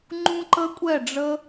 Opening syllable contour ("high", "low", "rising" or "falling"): high